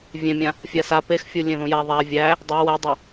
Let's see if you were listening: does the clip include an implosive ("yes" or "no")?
no